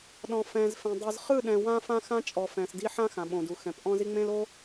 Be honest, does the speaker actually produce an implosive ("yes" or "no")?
yes